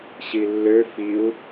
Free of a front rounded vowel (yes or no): no